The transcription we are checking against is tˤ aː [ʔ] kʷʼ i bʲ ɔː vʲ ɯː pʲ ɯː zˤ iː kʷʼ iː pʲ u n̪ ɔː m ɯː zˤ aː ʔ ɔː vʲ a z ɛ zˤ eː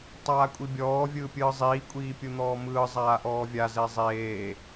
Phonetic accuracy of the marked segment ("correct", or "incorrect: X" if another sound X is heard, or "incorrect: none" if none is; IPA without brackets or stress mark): incorrect: none